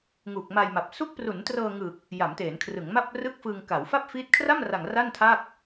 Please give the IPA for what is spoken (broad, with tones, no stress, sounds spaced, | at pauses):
ŋ u˨˩ k̚ m a˧ j m a˨˩ p̚ s u˦˥ k̚ p r u˩˦ n t r ɤː˧ ŋ ɯ˨˩ k̚ | j a˩˦ m t eː˩˦ n kʰ r ɯ˩˦ ŋ m a˥˩ p̚ r ɯ˥˩ k̚ f ɯ˧ ŋ k a˩˦ w f a˥˩ p̚ f iː˦˥ t̚ kʰ r a˥˩ m r a˨˩ ŋ r a˥˩ n tʰ a˥˩ k̚